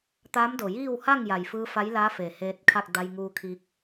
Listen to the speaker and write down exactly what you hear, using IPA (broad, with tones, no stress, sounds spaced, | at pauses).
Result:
t̪ aː˧˥ m d o˩ j iː˥˨ w h a˥˨ ŋ j a˩ j f ɯː˧ f a˧˥ j l aː˧˥ f eː˩ h eː˧ t̚ kʰ a˥˨ k̚ d a˧ j ŋ uː˧ kʰ i˧ k̚